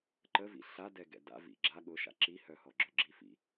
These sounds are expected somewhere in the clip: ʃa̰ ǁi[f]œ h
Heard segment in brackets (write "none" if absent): h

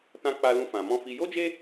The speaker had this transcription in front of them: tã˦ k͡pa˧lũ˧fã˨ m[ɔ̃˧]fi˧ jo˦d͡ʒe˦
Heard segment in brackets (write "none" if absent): ɔ̃˧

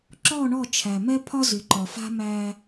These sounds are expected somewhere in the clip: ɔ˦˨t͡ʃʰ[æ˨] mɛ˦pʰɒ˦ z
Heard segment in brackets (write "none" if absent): æ˨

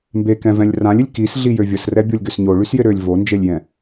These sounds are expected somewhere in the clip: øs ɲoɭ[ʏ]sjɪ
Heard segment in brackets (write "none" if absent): y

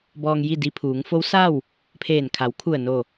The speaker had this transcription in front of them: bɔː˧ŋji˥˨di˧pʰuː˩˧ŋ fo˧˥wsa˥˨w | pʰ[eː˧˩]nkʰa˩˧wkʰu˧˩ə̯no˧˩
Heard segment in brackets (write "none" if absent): eː˧˩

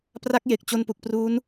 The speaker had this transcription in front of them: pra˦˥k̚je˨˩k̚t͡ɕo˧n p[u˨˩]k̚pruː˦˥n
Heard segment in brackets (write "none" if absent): u˨˩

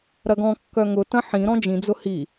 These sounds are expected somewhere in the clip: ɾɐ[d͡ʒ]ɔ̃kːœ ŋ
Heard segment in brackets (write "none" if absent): ɡ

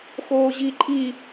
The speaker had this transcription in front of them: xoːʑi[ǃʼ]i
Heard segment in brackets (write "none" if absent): ǃʼ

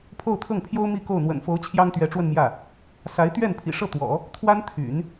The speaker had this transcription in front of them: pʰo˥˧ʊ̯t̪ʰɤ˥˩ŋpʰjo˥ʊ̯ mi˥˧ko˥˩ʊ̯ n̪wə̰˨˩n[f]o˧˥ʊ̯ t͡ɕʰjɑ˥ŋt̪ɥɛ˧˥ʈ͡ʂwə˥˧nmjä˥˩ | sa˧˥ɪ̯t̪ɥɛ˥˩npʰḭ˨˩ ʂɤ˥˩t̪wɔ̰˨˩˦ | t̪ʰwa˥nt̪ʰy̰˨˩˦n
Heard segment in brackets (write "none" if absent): f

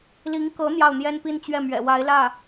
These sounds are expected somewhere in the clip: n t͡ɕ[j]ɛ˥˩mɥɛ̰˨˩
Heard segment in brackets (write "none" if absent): ɥ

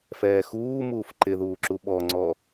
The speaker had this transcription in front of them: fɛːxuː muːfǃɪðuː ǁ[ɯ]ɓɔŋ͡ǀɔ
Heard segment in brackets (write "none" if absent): u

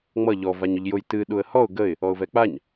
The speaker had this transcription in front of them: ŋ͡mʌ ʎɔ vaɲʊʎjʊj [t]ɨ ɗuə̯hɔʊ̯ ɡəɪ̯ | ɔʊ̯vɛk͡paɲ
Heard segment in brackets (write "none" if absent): t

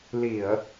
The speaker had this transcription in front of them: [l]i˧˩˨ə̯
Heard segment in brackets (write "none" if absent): l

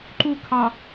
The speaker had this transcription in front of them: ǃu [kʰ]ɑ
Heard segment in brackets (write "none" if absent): kʰ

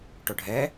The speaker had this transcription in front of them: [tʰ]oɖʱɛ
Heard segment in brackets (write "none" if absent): ʈ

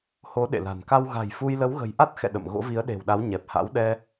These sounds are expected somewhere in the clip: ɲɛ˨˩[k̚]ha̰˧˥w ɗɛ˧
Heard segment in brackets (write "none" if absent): p̚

